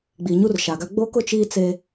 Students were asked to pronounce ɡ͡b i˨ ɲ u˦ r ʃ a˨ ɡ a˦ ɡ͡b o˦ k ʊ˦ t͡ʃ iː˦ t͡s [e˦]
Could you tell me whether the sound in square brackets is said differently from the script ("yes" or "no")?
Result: no